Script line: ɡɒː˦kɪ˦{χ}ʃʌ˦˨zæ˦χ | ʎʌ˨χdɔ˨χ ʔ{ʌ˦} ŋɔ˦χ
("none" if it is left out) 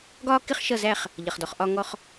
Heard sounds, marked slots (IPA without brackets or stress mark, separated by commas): χ, ɒ˦